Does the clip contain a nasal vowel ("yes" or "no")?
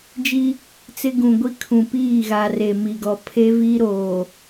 yes